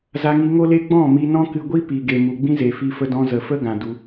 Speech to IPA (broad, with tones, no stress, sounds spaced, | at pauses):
z a˧ ŋ i˧ ŋ o˦ l e˦ ɡ͡b ɔ̃˦˨ m i˧ n ɔ̃˦ k ɨ˧ ɡʷ i˦ p i˨ ɡ e˨ m u˨ ɡ͡b ĩ˦ z e˨ f i˧ f ə˧ d ɔ̃˧ z ə˨ f ə˦ ɡ ã˨ d u˧